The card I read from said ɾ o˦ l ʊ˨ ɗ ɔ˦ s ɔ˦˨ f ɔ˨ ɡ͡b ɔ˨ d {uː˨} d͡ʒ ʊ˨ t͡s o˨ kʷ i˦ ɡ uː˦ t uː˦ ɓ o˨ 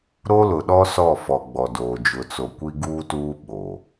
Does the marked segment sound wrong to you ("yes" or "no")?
yes